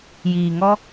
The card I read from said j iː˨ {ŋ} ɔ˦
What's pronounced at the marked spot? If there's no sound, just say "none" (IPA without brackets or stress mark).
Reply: ŋ